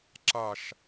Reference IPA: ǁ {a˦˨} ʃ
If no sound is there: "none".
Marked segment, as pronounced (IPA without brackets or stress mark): a˦˨